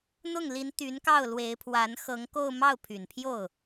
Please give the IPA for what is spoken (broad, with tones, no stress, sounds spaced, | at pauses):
n̪ ʊ˥˩ ŋ l i˧˥ n t̪ y˧˥ n k ɑ˥˩ ʊ̯ l w e˧˥ ɪ̯ pʰ w a˧˥ n x ɤ˧˥ ŋ k o˥˧ ʊ̯ m ɑ˥˩ ʊ̯ pʰ y˨˩ n pʰ j o˥˩ ʊ̯